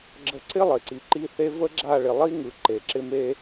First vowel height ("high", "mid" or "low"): mid